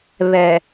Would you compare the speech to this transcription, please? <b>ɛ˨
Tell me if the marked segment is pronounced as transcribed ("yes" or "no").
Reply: no